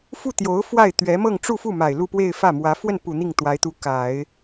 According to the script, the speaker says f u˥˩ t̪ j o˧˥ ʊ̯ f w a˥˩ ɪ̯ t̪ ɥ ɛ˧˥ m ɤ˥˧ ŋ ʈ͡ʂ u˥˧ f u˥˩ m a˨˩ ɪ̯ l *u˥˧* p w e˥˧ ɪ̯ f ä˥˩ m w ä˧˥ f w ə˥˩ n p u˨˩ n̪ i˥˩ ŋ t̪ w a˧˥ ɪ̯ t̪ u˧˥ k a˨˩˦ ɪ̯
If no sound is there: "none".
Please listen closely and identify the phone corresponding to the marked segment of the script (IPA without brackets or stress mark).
u˥˧